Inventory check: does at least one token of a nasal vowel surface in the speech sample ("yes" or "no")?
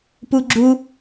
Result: no